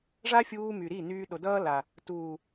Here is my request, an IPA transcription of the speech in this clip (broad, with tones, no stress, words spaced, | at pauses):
ʐa˦fʲuː˧my˨ɾi˦˨ nyː˧ɗo˨ dʌː˦la˨ | tuː˨